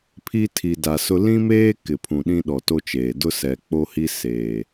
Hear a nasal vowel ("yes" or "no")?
yes